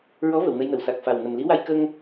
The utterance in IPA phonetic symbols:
ɹ ɔ˧˥ v ə˨˩˨ w n ə˧ j n ə˨˩˨ w s a˨˩ k̚ f a˨˩ w n ə˨˩ m l i˧˥ w a˧ j k ə˧ ŋ

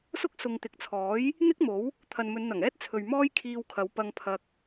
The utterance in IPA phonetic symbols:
s ʊ˥ k̚ s ʊ˨ ŋ t̪ ɪ˨ k̚ t͡sʰ ɔː˨˥ j | n̪ ɪ˥ k̚ m o˨˥ w | t̪ʰ ɐ˨ n m ɵ˨˧ n n̪ ɐ˨˩ ŋ ɛː˥ t̚ t͡sʰ ɵ˨ ɥ m ɔː˥ j kʰ iː˧ w kʰ ɐ˨˧ w p ɐ˧ ŋ pʰ ɐ˧ k̚

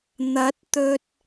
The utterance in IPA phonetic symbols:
n̪ ɐ˨˥ t̚ t̪ ɵ˧ t̚

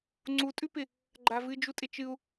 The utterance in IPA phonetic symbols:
ŋ͡ǀ u tʼ ʉ p ɪ | ɡ͡ǃ a v ɨ d͡ʒ u tʼ ɪ t͡ʃ ɨ u̯

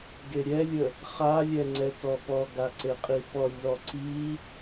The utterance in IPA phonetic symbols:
ɡ e ɾʲ ɛ lʲ ə | χ a lʲ ɛ ŋ͡ǀ ɛ t ɔ p ɔ ɡ a ǀ e qʼ i p ɔ lʲ ð ɔ ǀ i

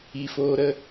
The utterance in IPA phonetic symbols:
i˧ f oː˦ ɾ ə˧

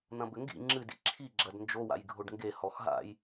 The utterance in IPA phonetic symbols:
n̪ ɐ̃ b ɘ ŋ ɡ ḭ ŋ͡ǁ ɨ d ḭ ǁʰ i ɡ͡ǁ ɐ d n d͡ʒ o w a̰ j ɡʱ o ɖ ŋ ɡ e h ɔ x ɦ a̰ j

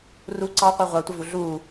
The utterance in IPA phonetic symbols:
r u ǀ ɑ qʷ ɛ ʁʷ ɑ tʷ ə v u ɮ u

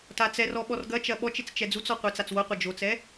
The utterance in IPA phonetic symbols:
t a t͡s ɛ r ɔ ɓ ɔ r ɡ ɐ t͡ʃ ɐ ɓ ɔ t͡ʃ e t͡s t͡ʃ ɛ d͡z u t͡s ɔ qʷ ɛ t͡s a t͡s w o qʷ ɐ d͡ʒ o t͡s ɛ

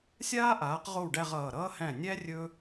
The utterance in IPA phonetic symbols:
sʲ aː˥ ʔ aː˩˥ q ʁ o˥˩ w ɖ æ˥˧ ʁ ʌː˩˧˩ ɾ ʌː˥ h æ̃˥˩ nʲ æ˥ rʲ ɵ˥

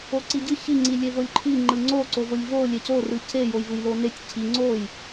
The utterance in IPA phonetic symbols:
o ǀ i ɟ ɯ ç i ŋ͡ǀ i lʲ e v o lʲ ǃʰ i ŋ͡ǃ ɯ ŋ͡ǀ o ǀ o v o lʲ v o lʲ e c o r ɯ c e j o j v ɯ j l o n e tʲ cʰ i ŋ͡ǀ o j

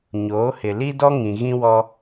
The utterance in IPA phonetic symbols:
ɲ oː˨˦ h ɪ˨ l i˦ d ɔ˦ ŋ ĩ˨ ɣ ĩ˦ w ɔ˦

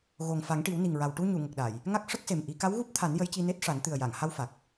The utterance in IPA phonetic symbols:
ɣ o˨˩ ŋ f a˨˩˦ ŋ ʈ i˨˩˦ w n i˨˩ ŋ ɹ a˨˩ w ʈ u˧ ɲ u˨˩˨ ŋ ə˨˩ k̚ ɗ a˨˩˨ j | ŋ a˦˥ k̚ ʂ ə˦˥ k̚ s e˨˩ m ʔ i˨˩˦ k a˧˥ w ɣ u˦˥ p̚ t̪ʰ a˨˩˦ n j ə˧˥ j c i˧ n e˦˥ t̚ ʂ a˨˩˦ n t̪ ɨ˨˩ ə̯ j a˨˩˨ ŋ h a˧ w f a˨˩ k̚

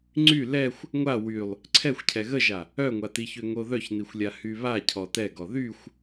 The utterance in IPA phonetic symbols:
ŋ͡ǀ y l ɛ xʷ | ŋʷ a w y lˠ | ǀʰ ɛ xʷ cʰ ɛ ɣ ə ʒ a | œ ŋʷ a t i ç ø ŋ o ð œ ç n i xʷ lʲ a h y β a cʰ ɔ t ɛ ɡ ɔ ð y xʷ

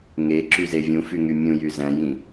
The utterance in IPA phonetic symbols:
ŋ e ǁ y z e vʲ ũ f y ŋ y mʲ ũ j y z æ̃ j ĩ

